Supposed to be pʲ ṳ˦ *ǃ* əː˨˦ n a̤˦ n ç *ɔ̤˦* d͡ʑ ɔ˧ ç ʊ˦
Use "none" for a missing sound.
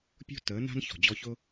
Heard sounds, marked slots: t, ɔ̤˨

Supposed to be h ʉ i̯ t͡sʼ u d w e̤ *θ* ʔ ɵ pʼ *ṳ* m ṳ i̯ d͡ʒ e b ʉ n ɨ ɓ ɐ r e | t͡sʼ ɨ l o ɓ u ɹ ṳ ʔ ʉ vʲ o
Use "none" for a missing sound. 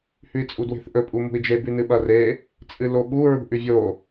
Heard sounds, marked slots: θ, u

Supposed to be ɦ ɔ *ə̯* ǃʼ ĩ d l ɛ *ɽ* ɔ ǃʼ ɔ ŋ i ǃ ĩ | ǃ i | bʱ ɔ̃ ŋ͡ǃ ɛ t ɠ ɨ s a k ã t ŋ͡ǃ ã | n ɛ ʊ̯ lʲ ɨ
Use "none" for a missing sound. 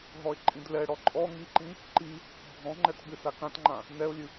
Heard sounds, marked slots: ɪ̯, ɽ

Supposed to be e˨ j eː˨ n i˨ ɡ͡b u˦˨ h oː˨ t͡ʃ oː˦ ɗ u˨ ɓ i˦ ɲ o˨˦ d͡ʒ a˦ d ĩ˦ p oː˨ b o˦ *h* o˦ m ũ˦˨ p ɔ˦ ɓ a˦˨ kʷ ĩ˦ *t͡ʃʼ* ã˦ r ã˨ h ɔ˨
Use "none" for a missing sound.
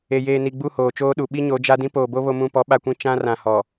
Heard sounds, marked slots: β, t͡ʃ

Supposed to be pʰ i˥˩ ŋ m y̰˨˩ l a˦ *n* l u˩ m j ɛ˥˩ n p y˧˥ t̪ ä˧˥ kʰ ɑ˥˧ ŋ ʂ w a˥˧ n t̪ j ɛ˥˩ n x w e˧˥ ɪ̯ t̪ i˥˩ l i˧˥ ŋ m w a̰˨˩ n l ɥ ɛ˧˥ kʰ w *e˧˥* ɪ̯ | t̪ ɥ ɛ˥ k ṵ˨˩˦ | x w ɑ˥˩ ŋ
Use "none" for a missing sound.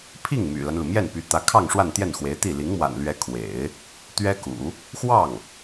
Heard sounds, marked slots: n, ḛ˨˩˦

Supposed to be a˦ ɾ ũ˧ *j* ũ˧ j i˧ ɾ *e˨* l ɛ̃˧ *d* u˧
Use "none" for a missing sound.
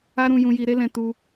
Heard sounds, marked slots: j, e˦, t

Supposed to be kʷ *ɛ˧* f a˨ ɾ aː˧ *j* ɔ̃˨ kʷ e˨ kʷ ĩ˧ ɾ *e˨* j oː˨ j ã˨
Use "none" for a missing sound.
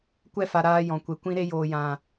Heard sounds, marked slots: ɛ˧, j, e˧

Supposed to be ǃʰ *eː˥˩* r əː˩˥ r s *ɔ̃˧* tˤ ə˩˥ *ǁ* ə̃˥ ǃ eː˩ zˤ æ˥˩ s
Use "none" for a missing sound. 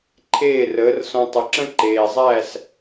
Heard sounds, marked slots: eː˥˩, ɔ̃˧, ǁ

